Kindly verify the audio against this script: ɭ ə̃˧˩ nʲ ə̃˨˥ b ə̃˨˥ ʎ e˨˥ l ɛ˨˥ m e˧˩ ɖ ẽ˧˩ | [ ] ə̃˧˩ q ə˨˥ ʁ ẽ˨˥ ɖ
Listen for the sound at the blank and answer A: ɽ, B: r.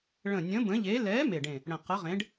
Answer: A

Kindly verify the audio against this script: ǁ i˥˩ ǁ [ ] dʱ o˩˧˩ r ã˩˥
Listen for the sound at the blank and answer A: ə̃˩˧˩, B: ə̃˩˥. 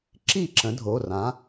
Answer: B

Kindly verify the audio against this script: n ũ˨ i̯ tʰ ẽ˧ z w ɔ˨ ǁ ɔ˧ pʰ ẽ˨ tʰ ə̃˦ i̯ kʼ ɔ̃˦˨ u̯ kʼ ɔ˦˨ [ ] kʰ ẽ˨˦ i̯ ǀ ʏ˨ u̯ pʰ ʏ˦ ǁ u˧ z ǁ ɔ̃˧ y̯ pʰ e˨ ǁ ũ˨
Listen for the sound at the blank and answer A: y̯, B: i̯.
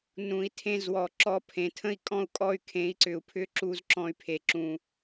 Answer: A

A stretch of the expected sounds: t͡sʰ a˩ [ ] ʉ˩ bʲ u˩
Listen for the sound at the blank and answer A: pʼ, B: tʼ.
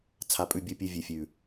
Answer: A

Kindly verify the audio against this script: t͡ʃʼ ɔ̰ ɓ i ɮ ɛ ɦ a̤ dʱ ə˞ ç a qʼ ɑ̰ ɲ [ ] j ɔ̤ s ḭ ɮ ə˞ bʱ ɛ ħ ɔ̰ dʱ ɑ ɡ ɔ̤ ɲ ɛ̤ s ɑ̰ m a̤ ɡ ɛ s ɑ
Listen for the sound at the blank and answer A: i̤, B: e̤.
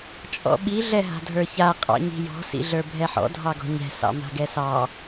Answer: A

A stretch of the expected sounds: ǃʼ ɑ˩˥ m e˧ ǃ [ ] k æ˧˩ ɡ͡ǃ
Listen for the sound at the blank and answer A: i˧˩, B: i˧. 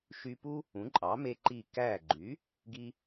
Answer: A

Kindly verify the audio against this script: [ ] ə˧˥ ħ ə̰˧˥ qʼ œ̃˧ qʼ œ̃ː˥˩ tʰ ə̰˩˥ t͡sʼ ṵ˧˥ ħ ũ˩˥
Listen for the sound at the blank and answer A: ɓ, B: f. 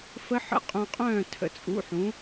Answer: B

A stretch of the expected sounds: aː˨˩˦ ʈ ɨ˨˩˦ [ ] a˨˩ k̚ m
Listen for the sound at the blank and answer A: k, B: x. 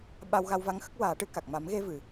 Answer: A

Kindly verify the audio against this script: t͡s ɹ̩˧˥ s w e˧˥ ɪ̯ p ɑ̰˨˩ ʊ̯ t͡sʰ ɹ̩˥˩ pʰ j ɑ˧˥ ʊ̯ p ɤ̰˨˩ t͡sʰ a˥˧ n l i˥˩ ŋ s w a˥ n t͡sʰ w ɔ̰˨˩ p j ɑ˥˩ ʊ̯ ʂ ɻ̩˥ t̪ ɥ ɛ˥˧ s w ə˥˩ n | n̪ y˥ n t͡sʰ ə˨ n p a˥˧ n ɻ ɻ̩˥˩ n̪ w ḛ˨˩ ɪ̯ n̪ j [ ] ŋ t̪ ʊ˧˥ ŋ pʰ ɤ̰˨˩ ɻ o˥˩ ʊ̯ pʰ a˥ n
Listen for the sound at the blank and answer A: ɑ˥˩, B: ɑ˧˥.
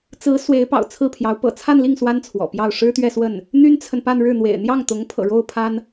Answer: A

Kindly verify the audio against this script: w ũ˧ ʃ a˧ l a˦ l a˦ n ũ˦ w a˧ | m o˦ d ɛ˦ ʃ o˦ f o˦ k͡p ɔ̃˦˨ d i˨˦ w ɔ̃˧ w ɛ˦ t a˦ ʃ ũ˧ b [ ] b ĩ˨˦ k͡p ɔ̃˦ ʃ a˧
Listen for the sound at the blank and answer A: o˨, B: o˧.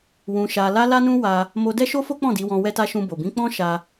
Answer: A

